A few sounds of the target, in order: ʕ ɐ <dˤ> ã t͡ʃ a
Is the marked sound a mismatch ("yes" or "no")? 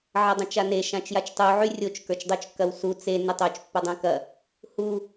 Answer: no